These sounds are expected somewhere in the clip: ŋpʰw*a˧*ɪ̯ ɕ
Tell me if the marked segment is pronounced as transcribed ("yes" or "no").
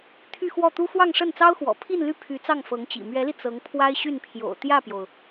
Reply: no